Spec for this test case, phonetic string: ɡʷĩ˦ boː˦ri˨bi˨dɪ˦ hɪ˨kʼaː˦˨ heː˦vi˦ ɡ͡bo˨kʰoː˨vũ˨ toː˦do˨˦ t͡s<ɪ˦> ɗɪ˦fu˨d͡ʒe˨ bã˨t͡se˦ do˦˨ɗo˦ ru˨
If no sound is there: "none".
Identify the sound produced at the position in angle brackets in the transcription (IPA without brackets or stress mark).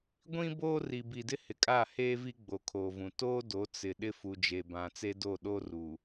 ɪ˨